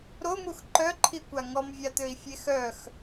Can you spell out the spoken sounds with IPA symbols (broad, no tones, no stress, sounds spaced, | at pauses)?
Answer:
ɾ o m u x ǃ œ ǃʰ i kʷ a ŋ ɔ m vʲ a t̪ ø i̯ fʲ e x œ x